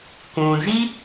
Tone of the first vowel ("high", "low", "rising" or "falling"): low